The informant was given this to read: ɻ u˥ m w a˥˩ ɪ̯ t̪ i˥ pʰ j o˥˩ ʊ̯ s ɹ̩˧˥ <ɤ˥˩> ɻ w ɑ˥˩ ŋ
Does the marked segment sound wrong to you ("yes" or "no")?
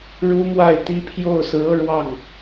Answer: yes